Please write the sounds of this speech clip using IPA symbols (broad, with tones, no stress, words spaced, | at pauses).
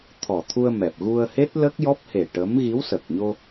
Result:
t̪ʰɔ˨˩t̪ʰu˧ə̯mɛ˨˩p̚ ɣu˧ə̯he˦˥t̚ lə˦˥k̚jɔ˦˥p̚he˨˩ʈə˧˥m ɣi˧˥wsə˨˩k̚ɲo˧